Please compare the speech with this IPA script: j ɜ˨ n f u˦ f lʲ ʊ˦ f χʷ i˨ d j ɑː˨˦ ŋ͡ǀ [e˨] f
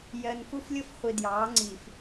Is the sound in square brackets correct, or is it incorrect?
incorrect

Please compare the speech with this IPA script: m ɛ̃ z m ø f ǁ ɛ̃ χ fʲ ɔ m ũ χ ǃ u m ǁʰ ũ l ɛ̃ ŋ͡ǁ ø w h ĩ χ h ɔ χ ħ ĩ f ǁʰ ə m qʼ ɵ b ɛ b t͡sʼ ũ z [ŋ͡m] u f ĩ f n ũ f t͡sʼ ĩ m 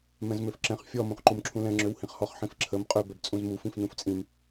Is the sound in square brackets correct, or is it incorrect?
incorrect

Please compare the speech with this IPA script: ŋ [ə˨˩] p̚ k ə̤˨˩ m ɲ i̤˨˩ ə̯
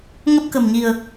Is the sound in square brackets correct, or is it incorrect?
incorrect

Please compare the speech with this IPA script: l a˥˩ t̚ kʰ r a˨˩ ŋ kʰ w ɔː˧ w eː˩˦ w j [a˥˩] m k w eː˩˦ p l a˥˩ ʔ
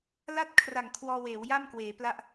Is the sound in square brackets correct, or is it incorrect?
correct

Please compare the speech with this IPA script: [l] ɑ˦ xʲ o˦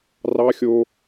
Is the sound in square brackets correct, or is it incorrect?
incorrect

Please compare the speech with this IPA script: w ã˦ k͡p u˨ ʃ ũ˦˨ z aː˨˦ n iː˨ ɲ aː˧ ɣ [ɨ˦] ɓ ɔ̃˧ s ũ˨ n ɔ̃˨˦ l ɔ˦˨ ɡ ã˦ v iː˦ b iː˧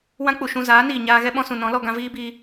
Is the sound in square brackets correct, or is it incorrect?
incorrect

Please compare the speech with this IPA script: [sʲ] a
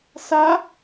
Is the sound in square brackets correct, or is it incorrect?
incorrect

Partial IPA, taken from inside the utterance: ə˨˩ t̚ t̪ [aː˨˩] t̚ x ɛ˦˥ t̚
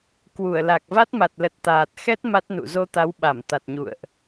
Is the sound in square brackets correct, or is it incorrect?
correct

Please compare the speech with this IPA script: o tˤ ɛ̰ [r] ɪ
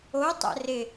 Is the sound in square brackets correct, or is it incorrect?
correct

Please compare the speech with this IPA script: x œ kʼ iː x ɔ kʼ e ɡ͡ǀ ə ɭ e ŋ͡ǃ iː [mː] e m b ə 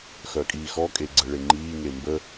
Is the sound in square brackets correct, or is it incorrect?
incorrect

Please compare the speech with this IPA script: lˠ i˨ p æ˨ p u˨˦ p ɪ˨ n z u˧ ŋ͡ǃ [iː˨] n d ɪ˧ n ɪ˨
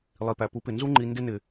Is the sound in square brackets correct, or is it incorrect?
incorrect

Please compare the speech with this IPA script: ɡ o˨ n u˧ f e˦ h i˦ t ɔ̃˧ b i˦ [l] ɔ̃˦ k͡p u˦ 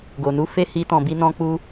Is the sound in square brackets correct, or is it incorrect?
incorrect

